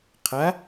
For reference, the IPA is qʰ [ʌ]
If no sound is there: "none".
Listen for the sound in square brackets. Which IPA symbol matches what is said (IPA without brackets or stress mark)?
a